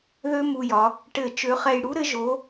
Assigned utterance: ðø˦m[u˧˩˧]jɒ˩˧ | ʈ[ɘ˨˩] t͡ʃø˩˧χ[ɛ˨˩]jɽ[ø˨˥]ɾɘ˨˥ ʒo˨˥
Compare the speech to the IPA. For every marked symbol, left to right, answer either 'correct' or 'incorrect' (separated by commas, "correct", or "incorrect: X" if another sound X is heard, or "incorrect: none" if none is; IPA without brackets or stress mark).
incorrect: u˨˩, incorrect: ɘ˧˩˧, correct, incorrect: u˨˥